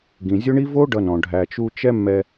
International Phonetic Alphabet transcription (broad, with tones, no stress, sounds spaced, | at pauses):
ɡ ĩ˨ zʲ o˦ ɳ i˦ v o˦ ɖ ʌ˧ n ɔ̃˨ ɖʱ æ˨ t͡ʃ u˧ t͡ʃ ɛ˦ mː ɛ˧